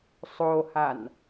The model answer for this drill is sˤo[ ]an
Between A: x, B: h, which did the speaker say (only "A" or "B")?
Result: B